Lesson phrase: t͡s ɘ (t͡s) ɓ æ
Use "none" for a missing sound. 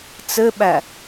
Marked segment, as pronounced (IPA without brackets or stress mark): none